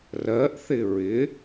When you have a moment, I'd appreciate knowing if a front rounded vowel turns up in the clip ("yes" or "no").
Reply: no